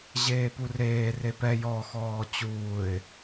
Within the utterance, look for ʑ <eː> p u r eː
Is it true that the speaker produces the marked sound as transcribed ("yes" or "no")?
yes